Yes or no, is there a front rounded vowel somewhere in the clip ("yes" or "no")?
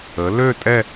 yes